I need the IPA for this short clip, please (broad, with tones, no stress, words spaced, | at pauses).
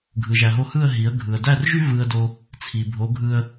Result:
ɡʱɯ˩ʒæ˩ɦo˧hɯ˥˩ə̯ ɦi˩˥ə̯ɡʱɯ˩ə̯ dæ˥˩rʒy˥ vɯ˧ə̯do˧ | t͡sʰi˩ bʱo˩˥ɡʱɯ˧ə̯